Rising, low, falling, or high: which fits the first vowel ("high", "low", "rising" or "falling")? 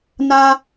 high